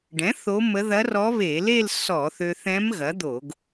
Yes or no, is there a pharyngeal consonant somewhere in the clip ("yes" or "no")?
no